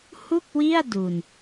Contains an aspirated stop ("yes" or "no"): no